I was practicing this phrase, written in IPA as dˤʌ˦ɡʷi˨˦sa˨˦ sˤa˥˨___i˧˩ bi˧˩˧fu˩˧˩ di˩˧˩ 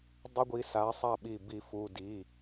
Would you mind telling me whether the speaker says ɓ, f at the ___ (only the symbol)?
ɓ